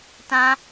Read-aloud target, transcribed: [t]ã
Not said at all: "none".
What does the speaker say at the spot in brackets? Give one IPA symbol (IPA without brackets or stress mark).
t